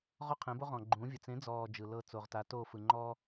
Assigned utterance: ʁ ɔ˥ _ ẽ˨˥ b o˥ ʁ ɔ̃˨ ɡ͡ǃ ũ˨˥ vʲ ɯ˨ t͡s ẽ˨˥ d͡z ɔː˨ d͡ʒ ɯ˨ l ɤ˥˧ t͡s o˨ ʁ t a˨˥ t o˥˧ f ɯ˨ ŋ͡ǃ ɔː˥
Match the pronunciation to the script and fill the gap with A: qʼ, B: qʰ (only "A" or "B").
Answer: B